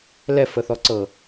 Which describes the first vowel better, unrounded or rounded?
unrounded